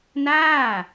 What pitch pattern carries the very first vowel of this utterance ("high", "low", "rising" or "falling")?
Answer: falling